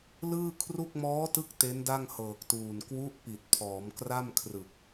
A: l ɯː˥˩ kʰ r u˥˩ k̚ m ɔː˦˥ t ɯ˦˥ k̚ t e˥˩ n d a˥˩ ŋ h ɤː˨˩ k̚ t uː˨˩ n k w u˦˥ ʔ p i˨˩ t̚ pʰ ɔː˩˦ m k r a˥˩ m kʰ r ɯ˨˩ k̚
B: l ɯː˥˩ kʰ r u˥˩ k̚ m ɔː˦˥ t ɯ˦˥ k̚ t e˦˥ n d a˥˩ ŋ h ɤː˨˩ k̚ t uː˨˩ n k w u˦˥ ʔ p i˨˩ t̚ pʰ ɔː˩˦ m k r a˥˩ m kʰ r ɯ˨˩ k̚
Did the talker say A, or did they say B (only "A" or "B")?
B